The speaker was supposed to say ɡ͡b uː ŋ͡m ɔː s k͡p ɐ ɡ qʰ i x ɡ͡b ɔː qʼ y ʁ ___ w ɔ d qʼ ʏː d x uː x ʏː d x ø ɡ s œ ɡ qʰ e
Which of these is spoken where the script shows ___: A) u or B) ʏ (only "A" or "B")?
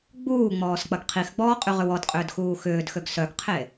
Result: B